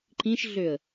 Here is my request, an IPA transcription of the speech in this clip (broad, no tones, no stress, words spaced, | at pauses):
ǃĩʃɮøə̯